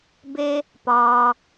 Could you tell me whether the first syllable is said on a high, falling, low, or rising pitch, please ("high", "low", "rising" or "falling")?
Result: high